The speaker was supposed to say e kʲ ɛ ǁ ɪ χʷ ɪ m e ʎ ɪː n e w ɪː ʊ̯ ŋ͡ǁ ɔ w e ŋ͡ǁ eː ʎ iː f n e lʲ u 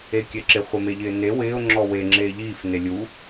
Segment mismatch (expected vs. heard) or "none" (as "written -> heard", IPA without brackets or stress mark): none